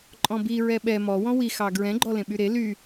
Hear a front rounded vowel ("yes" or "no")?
yes